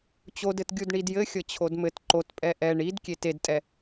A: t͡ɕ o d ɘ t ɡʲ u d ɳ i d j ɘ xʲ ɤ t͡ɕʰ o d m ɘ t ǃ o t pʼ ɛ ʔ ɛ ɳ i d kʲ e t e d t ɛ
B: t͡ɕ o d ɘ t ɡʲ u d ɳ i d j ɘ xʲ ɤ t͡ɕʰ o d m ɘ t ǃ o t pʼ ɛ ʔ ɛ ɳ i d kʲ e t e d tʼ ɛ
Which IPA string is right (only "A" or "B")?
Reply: B